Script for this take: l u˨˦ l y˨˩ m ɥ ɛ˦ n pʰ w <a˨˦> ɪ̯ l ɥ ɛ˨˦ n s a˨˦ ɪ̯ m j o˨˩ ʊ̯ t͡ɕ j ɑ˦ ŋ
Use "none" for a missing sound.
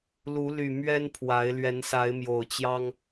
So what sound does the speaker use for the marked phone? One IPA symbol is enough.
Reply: a˨˦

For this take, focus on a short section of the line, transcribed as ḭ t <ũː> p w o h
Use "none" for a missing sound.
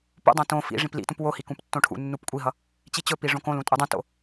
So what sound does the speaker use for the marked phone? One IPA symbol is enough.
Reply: ũ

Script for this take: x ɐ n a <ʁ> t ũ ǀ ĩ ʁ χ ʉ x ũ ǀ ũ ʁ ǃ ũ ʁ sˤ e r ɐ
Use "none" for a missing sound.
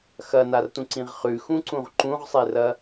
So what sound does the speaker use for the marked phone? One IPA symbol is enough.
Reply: r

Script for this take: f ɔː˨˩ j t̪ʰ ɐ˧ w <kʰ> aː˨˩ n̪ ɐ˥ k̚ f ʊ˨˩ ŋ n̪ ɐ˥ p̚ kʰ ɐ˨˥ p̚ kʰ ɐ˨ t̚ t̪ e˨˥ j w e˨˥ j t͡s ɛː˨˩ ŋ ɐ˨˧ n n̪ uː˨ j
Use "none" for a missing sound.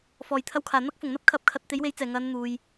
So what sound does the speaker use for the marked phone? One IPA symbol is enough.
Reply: kʰ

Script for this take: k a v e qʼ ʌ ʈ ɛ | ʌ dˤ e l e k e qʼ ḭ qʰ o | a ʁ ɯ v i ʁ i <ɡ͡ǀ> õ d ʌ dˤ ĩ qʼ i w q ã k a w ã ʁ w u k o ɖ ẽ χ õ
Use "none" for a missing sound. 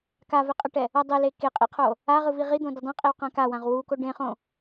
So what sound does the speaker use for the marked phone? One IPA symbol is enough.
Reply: d̪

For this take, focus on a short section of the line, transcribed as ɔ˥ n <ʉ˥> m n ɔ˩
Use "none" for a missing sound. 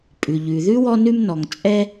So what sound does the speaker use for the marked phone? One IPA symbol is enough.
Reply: ʉ˥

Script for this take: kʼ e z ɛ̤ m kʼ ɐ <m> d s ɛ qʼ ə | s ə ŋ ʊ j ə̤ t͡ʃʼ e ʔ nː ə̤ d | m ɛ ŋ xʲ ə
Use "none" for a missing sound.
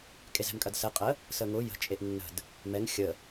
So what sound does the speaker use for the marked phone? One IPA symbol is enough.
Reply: none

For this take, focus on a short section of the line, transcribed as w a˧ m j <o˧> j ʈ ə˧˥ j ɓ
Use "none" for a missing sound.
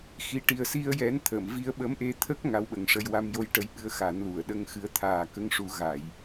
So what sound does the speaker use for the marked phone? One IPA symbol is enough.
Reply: o˧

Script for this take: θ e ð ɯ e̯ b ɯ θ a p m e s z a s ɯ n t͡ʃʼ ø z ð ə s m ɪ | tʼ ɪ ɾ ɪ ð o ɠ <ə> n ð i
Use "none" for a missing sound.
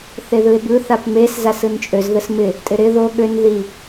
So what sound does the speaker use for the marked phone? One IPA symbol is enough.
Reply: ø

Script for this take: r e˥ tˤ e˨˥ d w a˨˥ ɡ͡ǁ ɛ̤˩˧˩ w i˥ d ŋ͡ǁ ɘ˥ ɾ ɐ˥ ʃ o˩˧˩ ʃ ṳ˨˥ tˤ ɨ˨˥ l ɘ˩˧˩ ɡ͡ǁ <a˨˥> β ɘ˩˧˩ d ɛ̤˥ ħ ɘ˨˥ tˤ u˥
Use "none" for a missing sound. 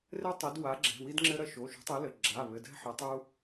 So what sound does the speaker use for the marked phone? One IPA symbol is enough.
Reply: a˩˧˩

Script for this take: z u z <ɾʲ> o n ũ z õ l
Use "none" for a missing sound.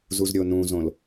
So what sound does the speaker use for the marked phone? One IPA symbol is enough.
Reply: ɾʲ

